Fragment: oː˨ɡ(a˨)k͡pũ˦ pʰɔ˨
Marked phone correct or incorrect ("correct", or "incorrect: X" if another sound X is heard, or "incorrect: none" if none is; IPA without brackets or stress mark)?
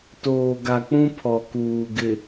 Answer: correct